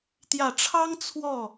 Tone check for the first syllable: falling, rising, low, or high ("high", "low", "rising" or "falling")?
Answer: low